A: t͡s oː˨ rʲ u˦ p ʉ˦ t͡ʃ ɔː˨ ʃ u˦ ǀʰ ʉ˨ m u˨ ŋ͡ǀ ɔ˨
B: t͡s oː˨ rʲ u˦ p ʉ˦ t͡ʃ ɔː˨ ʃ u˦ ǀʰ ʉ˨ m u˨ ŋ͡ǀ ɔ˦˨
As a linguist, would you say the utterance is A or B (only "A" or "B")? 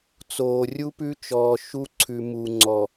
A